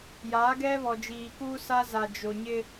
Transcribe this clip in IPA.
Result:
jaː˨˦ɡɛ˦βɔ˨ d͡ʒiː˨kuː˦sa˦ za˨ d͡ʒo˨ ɲɪ˦

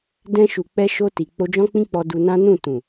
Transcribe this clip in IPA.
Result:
dɛ̃˧ʃu˨k͡pɛ˧ ʃo˧ti˨ k͡po˧d͡ʒɔ̃˦k͡pĩ˦k͡pɔ˧ du˧nã˦ nũ˦˨ tũ˨

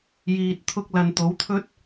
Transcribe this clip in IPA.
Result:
jiː˨t̚t̪ʰʊ˧k̚ lɐ˨n t̪o˨˥wt̪ʰɵ˥t̚

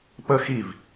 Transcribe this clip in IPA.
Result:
pə xiv

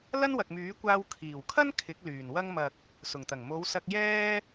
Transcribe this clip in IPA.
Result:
lɐ˥nwɐ˨k̚myː˨˥kʷaː˧w kʰiː˨˩wkʰɐ˥n kʰɪ˨˥k̚lyː˨˩n wɐ˧ŋmɐ˨k̚ | sʊ˨˩ŋt̪ɐ˨˩ŋ mo˨˧wsɐ˧k̚jɛː˥

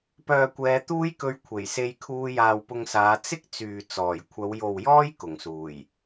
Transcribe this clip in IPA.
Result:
pœː˨kʷɛː˨˧ t̪uː˥jkɵ˧ɥ kʷʰe˨˩jse˧j kʰuː˧jaː˨wpʊ˧ŋsaː˨˧ t͡sɪ˥k̚ t͡syː˨ t͡sɔː˨˩j kʷʰɐ˨˧wjo˨wjɔː˥j kʊ˨˩ŋsuː˨˩j

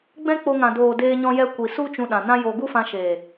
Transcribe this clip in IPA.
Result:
ɡ͡bɛ̃˦k͡po˧ŋã˨ doː˨deː˧ ɲɔ̃˧jɛ˧kʷi˨ su˦ t͡ʃũ˧ɗã˨nã˦jo˧ ɡu˦fã˧ʃeː˨

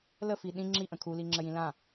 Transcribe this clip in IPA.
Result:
ləfi ɗĩ ŋ͡ǁiʔə̃ kʰuliŋ͡ǁəjĩ lã

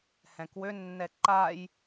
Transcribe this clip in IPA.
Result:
hɛ̃kwønːɛ ǃaj

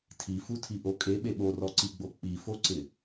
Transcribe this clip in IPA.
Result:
tʰifutʰiʔo kʼeɓe ɓorɔǀiɡ͡bo k͡pifoǀɪ

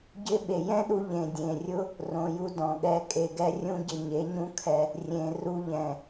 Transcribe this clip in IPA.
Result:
ɟɪ˧ ɓe˨jɛ̃˦ɗu˧ ʎẽ˨dʲẽ˨rʲʊ˦ | rõ˨ju˧dɔ̃˨ɠɛ˧ kʼe˨ɡɛ˦rʲũ˦ɟɪ˧ ɲe˨˦ɲũ˦kʰɛ˧ | rʲẽ˨ru˧ʎɛ̃˨

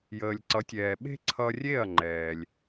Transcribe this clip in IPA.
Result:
jəː˩lʲǀʌ˩˥tʲɛː˩ɓe̤˥ ǀʰʌ˧rʲe˥˩ɐ̯ŋ͡ǃɛː˩lʲ

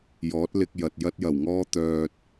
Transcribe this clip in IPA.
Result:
jɔː˨˥t̚lɪ˧k̚jɐ˨t̚ jɐ˥t̚jɐ˨˩wŋɔː˥t̪œː˧t̚

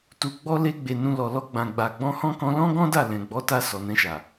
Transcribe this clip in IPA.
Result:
tu˨ɡ͡bɔ˧le˧ɡ͡be˨ nũ˧lɔ˨ lɔ˧ɡ͡bã˨ɡ͡ba˨ ɡ͡bɔ̃˧hɔ̃˦ kɔ̃˧lɔ̃˦ɡɔ̃˦ da˦˨ lɛ̃˨ɡ͡bɔ˨˦ta˧ sɔ˨nɛ̃˧ʃa˨

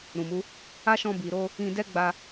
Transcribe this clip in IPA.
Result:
ɾũ˨mu˨˦ | a˦ʃɔ̃˧bi˨ɾo˧ | ĩ˧dɛ˦ ɡ͡ba˧

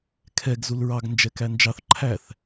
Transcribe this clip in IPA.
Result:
kʰɛɡ zulɹɑɡ nd͡ʒɛkænd͡ʒɑθ ǃʰæθ

